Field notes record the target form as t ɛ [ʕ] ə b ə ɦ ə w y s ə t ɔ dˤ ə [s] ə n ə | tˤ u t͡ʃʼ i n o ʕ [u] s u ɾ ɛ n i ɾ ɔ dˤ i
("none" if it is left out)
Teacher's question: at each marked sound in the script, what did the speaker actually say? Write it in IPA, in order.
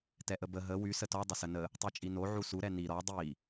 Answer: ʔ, s, u

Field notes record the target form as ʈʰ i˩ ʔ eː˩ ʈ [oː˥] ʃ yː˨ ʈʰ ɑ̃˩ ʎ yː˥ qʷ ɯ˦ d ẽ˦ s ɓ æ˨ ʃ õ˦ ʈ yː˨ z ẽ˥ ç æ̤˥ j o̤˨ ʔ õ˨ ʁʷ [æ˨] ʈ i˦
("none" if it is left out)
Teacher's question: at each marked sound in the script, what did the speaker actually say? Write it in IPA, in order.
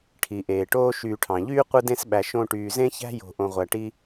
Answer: oː˥, æ˨

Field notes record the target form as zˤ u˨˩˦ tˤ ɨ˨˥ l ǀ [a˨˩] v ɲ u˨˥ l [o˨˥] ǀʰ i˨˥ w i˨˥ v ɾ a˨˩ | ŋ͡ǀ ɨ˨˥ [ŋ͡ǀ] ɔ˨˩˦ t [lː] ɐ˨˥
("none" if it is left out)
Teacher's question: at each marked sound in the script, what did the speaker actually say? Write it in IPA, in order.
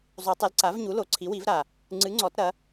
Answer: a˨˥, o˨˥, ŋ͡ǀ, ɾ

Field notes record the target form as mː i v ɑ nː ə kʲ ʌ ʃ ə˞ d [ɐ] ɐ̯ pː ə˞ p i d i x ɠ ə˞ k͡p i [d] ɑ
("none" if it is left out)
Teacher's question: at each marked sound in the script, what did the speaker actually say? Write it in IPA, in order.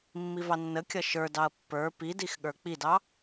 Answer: ɑ, d

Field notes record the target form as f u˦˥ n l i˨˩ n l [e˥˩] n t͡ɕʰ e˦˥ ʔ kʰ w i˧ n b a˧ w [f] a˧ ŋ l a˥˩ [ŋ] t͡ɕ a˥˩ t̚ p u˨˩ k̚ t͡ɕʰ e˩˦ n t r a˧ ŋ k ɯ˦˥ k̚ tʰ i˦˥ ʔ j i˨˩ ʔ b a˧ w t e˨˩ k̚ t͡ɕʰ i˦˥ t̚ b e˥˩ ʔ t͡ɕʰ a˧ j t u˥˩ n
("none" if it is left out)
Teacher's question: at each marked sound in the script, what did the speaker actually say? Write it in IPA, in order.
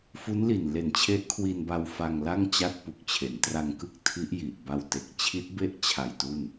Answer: e˨˩, f, ŋ

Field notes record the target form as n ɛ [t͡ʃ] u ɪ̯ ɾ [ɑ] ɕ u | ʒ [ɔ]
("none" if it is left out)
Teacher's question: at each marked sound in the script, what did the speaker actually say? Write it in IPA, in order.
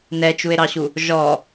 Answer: t͡ʃ, ɑ, ɔ

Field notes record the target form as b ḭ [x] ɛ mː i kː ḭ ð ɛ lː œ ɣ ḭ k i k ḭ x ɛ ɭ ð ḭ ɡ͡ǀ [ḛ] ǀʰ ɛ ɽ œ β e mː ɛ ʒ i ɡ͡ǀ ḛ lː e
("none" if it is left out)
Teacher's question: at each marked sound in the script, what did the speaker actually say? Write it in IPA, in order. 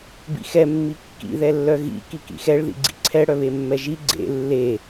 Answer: x, ḭ

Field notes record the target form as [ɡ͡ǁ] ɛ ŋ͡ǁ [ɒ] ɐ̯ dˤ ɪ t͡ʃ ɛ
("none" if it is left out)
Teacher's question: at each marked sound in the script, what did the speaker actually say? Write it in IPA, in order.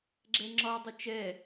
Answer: ɡ͡ǁ, ɒ

